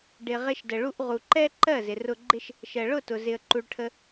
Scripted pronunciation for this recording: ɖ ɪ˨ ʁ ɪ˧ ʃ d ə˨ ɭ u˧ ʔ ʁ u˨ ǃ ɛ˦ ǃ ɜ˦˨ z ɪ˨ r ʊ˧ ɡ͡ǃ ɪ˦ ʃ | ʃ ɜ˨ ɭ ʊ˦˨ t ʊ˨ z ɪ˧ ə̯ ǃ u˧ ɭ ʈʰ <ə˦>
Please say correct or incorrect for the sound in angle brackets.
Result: correct